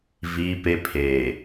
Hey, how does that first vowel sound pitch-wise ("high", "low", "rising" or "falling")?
high